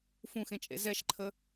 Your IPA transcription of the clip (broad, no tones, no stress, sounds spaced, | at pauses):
f ũ x ẽ t͡ʃʼ ḛ z ɛ ʃ ǃʰ ə